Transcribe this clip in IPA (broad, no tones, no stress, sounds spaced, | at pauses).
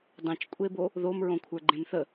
dˤ ẽ t͡ʃ kʷʼ e b o | ð o m ɹ õ kʷʰ ə˞ ɡ͡ǃ ẽ m θ ə